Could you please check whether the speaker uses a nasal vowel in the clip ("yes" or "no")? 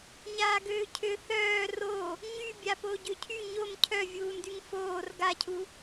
no